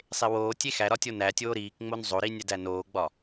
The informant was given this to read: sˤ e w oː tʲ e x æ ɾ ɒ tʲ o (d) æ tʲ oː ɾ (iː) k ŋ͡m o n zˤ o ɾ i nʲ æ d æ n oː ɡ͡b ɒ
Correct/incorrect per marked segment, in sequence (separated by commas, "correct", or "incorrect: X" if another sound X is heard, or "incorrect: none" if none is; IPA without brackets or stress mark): incorrect: n, correct